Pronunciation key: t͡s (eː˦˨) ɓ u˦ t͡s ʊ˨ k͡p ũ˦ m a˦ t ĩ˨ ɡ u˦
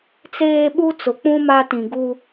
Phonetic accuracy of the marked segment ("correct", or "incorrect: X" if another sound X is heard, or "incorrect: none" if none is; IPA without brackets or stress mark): incorrect: eː˦